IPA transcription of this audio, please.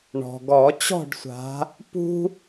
ɳ ɔ̤˩ ɡ ɔ˨˩˦ t͡ɕ ɔ̤˥˨ ɖ sʷ a̤˨˦ | p ṳ˦

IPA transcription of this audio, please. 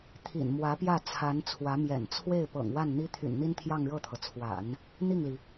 t̪ʰ ḭ˨˩ n m w ä˧˥ p j ä˥˩ t͡sʰ a˧˥ n t͡sʰ w ä˧˥ m j ɛ̰˨˩ n t͡sʰ w e˥˩ ɪ̯ p ɤ̰˨˩ ŋ w a˥˩ n n̪ i˥ t̪ʰ y̰˨˩ n n̪ i˥ n t̪ʰ j ɑ˥˧ ŋ ɻ ɤ˥˩ t̪ʰ ɤ˩ t͡sʰ w a̰˨˩˦ n | n̪ i˥˩ ŋ l i˩

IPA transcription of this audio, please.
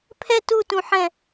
pʰ ɛ t u t ũ ħ ɛ̃

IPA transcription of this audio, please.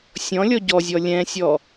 sʲ ɔ̃ lʲ ɔ ɟ ɔ zʲ ɔ lʲ ɛ̃ sʲ ɔ

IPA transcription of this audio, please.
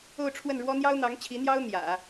o˥˧ ʊ̯ ʈ͡ʂʰ w ə˥˩ n ɻ w ɔ˥ n̪ j ɑ˥ ʊ̯ n̪ ɑ˧˥ ŋ t͡ɕʰ i˧˥ n̪ j ɑ˥ ʊ̯ n̪ j ä̰˨˩˦

